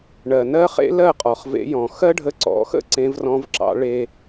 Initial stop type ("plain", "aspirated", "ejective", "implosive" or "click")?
ejective